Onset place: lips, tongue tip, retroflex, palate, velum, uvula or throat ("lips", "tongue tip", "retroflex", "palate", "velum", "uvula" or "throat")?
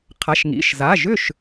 uvula